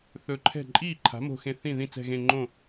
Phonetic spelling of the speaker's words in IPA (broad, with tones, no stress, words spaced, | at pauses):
θɵ˧˩ǃʰɛ̤˥˩ ǃʼiː˥˩ǃʰa̤˩˥mo̤˧˩xẽ˧˩ θĩ˥˩ðĩ˥˩ t͡sɛ̤˧˩ɣẽ˧˩ ŋ͡ǃõ˥˩